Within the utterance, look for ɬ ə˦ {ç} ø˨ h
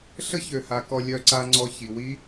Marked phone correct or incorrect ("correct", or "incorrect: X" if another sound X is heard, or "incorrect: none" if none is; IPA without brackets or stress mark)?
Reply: correct